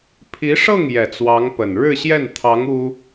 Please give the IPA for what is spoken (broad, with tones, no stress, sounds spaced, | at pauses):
pʰ i˧˥ ʂ ɤ˥˩ ŋ j ɛ˨˩ t͡s w ɑ˧˥ ŋ p ə˨˩ n ɻ ɻ̩˥˧ ɕ j ɛ˥˩ n t̪ʰ ɑ˧˥ ŋ u˥